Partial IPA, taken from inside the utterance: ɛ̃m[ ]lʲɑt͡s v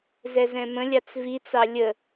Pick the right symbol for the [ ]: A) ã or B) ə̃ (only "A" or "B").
B